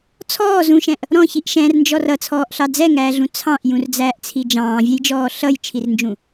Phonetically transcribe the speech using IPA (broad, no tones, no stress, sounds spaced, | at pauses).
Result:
t͡sʰ ɔː z ũ ʃ ɛ̃ ʔ | ɾ ɔ̃ ç i ʔ ʃ ɛ̃ r n d͡ʒ ɔ r ʌ t͡sʰ ɔː ʔ ɬ ɑ d͡z ɛ ŋ æː ɮ ũ t͡sʰ ɑ̃ ʔ j ũ r d͡z æː ʔ t͡sʰ i d͡ʒ ɑ̃ː vʲ ɛ j d͡ʒ ɔː ɬ ʌ j t͡ʃʰ i r n d͡ʒ ũ